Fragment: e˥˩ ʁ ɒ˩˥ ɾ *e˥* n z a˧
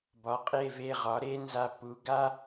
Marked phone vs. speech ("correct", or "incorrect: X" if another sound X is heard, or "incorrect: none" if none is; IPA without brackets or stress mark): correct